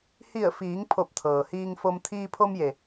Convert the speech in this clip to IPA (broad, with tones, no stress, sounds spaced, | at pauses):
h i˧˩ ə̯ f iː˩˧ ŋ pʰ o˧˩ p̚ t̪ʰ ɤː˩ h iː˧ ŋ f o˧ m t̪ʰ iː˧ pʰ o˧ m j e˩